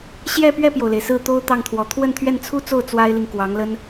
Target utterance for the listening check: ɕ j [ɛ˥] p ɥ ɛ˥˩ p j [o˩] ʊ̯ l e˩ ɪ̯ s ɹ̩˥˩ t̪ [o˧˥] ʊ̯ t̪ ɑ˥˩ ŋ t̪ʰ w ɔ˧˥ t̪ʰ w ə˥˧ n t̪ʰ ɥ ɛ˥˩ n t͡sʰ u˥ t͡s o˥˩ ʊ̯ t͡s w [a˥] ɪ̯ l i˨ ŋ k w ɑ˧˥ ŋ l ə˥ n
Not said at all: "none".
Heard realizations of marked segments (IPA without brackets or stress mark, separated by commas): ɛ˥˧, o˩, o˥, a˥